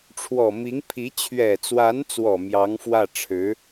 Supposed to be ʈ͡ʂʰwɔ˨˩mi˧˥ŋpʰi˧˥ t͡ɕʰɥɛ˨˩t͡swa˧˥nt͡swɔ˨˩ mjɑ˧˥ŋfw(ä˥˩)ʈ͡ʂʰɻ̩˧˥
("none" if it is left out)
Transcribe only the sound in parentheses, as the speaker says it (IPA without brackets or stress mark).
ä˥˩